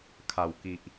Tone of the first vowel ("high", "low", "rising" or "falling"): low